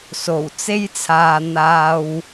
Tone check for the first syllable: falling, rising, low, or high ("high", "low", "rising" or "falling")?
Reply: low